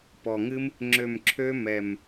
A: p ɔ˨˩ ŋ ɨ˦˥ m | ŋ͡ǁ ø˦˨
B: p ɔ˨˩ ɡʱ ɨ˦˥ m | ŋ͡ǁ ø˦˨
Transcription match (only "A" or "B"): A